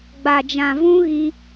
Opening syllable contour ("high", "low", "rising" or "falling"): low